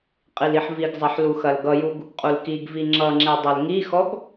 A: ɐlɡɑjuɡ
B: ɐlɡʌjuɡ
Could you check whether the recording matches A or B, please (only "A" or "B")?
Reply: B